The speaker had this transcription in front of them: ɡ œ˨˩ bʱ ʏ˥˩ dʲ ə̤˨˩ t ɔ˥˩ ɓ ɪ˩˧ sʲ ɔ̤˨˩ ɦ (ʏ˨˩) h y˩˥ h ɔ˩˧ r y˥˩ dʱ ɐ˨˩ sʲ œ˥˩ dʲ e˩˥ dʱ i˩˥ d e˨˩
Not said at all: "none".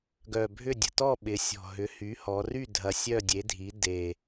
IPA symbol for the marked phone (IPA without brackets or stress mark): ʏ˩˥